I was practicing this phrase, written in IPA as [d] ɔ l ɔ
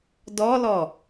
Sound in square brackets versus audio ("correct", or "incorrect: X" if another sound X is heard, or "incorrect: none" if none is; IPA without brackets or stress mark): correct